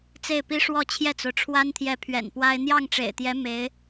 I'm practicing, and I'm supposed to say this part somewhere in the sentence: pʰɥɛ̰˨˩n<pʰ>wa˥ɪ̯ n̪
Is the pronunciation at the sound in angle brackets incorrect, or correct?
incorrect